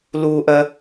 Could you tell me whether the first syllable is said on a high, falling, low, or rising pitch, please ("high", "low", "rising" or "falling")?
high